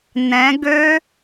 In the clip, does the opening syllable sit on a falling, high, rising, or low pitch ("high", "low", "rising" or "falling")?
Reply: rising